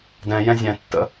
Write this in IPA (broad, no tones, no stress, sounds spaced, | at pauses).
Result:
d ɛ̃ j ɛ̃ zʲ ɛ̃ tː ə̰